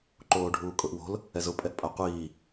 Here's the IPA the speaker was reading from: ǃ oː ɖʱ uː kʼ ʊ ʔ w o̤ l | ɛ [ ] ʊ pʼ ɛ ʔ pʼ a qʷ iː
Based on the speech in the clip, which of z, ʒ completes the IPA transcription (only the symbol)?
z